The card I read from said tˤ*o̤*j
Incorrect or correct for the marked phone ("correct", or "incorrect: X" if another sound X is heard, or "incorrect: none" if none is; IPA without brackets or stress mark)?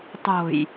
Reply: correct